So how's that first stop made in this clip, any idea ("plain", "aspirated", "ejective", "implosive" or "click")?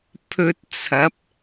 aspirated